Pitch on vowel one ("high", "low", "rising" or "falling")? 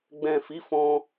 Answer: low